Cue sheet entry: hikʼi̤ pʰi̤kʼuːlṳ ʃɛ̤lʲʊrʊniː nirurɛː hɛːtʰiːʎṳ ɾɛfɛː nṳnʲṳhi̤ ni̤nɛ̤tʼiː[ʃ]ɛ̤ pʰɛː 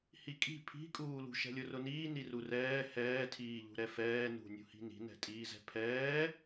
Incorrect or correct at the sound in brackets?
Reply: incorrect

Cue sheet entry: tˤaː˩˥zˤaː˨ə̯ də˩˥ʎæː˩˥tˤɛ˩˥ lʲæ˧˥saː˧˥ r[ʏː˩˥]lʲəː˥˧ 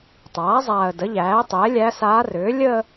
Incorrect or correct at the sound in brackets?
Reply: correct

